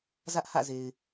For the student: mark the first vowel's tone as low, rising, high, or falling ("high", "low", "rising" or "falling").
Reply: high